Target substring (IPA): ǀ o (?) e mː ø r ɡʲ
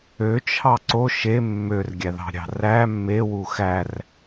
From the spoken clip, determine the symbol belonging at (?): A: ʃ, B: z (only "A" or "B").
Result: A